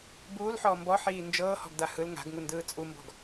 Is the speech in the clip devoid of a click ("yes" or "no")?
yes